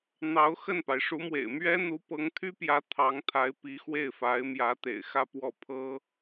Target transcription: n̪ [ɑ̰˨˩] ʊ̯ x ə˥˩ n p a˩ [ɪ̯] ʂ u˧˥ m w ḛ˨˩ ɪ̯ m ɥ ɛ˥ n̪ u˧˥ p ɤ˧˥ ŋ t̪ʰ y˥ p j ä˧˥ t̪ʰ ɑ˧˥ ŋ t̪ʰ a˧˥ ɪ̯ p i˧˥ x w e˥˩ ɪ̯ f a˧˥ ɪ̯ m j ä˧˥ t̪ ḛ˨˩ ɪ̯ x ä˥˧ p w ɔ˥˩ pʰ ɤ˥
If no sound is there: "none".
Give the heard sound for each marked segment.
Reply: ɑ˧˥, ɪ̯

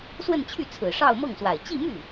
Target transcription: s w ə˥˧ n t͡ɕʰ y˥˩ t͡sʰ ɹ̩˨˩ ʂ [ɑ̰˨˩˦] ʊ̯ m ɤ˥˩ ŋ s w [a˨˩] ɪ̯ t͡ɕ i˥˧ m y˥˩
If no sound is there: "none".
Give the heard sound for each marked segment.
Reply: ɑ˥˧, a˨˩

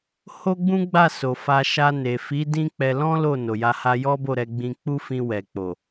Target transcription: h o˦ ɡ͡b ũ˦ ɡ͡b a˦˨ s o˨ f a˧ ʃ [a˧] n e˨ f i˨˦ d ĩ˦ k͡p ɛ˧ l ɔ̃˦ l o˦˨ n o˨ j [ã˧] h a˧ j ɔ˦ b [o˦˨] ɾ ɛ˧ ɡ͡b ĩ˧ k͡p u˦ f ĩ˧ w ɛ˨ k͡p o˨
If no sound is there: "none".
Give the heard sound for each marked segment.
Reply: a˧, a˧, o˦˨

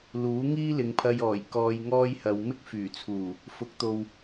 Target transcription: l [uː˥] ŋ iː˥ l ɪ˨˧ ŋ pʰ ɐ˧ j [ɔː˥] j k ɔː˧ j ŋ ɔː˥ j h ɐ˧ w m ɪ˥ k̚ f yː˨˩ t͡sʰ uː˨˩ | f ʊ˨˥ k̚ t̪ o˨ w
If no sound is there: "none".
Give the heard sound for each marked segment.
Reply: uː˨˥, ɔː˨˩

